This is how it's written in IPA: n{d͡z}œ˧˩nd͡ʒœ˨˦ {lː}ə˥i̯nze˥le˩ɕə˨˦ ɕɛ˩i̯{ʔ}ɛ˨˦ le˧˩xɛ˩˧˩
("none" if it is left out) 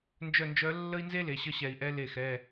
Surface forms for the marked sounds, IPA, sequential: d͡ʒ, lː, ʔ

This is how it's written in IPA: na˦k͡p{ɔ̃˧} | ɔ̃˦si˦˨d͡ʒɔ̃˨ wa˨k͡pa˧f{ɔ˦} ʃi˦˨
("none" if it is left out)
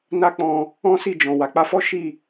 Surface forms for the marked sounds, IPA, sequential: ɔ̃˧, ɔ˦

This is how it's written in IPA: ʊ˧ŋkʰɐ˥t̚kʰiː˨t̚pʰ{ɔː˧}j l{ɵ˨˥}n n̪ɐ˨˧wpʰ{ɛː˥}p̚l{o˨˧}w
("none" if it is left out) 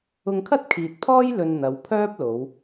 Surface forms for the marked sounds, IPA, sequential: ɔː˥, ɵ˧, œː˥, o˨˧

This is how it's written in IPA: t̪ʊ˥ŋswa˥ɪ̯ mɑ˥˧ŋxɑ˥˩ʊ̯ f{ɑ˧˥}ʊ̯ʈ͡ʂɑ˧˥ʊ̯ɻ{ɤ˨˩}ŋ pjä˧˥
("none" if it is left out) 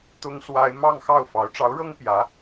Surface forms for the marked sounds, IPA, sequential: ɑ˧˥, ɤ˥

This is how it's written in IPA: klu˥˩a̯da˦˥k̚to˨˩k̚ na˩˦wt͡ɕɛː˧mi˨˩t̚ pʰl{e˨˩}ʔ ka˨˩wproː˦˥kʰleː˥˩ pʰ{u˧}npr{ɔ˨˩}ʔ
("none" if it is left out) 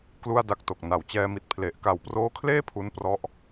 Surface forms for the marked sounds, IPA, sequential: e˨˩, u˦˥, ɔ˦˥

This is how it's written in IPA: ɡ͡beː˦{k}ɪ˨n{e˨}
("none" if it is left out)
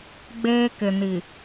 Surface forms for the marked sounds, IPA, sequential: k, i˨

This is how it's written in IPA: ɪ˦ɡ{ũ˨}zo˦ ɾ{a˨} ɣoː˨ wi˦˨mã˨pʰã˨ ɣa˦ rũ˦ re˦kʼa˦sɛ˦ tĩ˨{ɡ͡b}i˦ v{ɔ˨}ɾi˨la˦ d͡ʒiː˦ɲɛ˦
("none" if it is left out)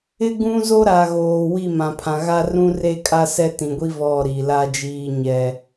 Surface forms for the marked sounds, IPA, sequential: ũ˦, a˨, ɡʷ, ɔ˦˨

